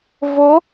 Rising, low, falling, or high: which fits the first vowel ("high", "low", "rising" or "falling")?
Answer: rising